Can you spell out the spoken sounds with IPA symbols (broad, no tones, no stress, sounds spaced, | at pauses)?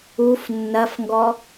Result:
u f nː ɐ f ŋ ɡ ɔ